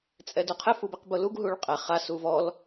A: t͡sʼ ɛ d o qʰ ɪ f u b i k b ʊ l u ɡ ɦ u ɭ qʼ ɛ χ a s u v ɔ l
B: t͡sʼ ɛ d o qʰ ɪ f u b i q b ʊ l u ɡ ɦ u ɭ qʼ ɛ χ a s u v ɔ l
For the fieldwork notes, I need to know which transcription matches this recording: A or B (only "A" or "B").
B